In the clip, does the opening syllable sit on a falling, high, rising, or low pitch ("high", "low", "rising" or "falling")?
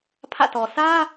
falling